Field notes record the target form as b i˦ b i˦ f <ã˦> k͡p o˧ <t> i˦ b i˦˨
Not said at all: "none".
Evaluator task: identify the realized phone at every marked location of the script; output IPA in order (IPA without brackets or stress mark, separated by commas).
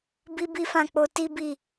ã˦˨, t